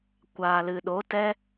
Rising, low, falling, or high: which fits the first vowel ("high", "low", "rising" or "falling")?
low